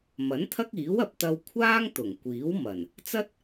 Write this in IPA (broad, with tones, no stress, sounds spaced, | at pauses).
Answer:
m ɐ˨˥ n t̪ʰ ɐ˥ k̚ iː˨˥ w ɐ˨ p̚ t̪ ɐ˧ w kʷʰ aː˥ ŋ t̪ ʊ˨˩ ŋ kʷ iː˨˥ w m ɐ˨˩ n | t͡s ɐ˥ t̚